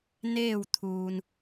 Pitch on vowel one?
falling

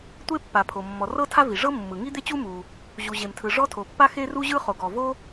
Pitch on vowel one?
high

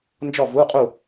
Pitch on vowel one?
falling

